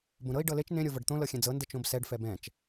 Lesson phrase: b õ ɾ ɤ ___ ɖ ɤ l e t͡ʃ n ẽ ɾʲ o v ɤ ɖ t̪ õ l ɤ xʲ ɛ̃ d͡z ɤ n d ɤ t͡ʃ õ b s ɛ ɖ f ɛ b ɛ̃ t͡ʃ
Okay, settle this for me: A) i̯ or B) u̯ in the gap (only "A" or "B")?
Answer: A